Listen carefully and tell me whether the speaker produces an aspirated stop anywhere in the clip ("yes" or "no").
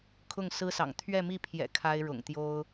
yes